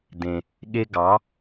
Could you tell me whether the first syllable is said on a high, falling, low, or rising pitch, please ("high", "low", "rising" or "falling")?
low